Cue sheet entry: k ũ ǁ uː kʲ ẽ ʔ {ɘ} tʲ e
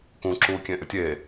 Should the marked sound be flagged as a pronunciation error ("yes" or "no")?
no